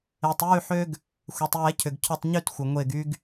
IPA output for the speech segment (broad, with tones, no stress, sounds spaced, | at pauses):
e˩ tˤ j y˧˩ ħ ø˧ ɡ | xʷ ɛ˩ tˤ j ɛ˨˩˦ cʰ ʏ˩ ɡ cʰ ʏ˧˩ tˤ ɲ y˧˩ t xʷ ə˩ ŋʷ e˧˩ ɡ y˧ ɡ